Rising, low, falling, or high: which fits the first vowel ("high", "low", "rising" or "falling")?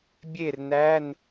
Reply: falling